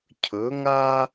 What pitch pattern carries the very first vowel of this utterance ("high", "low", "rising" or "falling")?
rising